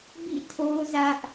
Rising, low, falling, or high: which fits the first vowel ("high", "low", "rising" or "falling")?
falling